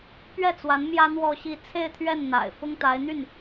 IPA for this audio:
p ɥ ɛ˥˩ t͡s w a˧˥ n m j ä˥ n̪ w ɔ˥˧ ɕ i˥˧ t͡sʰ e˥˧ ɪ̯ t̪ʰ ɥ ɛ˥˩ n n̪ a̰˨˩ ɪ̯ f ʊ˥ ŋ t̪ a˧˥ ɪ̯ n̪ y˥˩ n

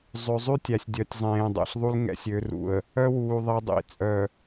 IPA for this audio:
zˤ ø˨ zˤ y˦ tʲ æ˨ sʲ dʲ œ˨ tʲ zˤ ẽː˨ dˤ ɛ̰˨ ɬ ðˤ u˦ l ŋ ɛ̰˦ sʲ ø˨˦ r ṵ˨ ə̯ | œ˦ w uː˨ ðˤ i˨ dˤ ḭ˨ t͡sʼ œ˨

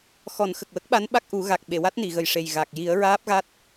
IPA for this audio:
x ɔ˨˩˦ n x ə˨˩ k̚ w ə˦˥ k̚ ɓ a˧˥ n ɓ a˦˥ k̚ ʔ u˨˩˦ ɣ a˨˩ k̚ ɓ e˨˩˨ w a˦˥ t̚ n i˨˩˨ ɣ ə˨˩ j ʂ e˨˩ j ɣ a˨˩ k̚ j i˨˩˦ ə̯ ɹ aː˦˥ p̚ ɣ a˦˥ t̚

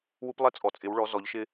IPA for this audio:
w u˦ p lˠ ɛ˦ t͡sʼ ɔ˨ t͡sʼ ɪ˨˦ w ɭ ɔ˨˦ z ɔ˨˦ ʎ ʃ ɪ˦

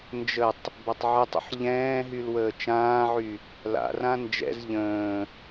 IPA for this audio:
n d͡ʒ ə tˤ | b a tˤ ʕ ɪ tˤ ə̰ ħ ʎ ɛ̃ː ɦ y l w əː t͡ʃ ãː ʕ y | l a̰ r ã n d͡ʒ ɛ̰ z ʎ ə̃ː

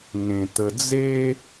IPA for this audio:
ŋ ẽ˧ t̪ ə˧ d͡z e˦

